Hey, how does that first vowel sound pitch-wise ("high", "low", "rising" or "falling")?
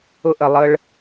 falling